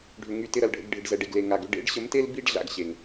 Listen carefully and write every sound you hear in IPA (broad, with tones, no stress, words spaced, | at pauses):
ɖʱʏ˨ ŋy˧tɪ˧ɾɐ˨lɖʱə̰˧ɡ ɖʱɪ˨ɖzɛ˨ɖe˨ɡle˨ ŋa˨ɡʏ˦ ɖḛ˨˦ɖɕə˨˦mte˦l bi˦ɖ ɮa̰˧ɡɕe˨ŋ